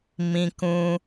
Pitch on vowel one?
high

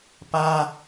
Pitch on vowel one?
high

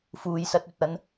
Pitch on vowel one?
low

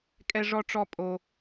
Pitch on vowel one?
high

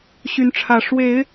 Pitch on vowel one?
rising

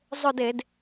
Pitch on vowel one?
falling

